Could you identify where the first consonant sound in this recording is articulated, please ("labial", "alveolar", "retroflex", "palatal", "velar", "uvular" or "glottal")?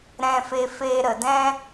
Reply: alveolar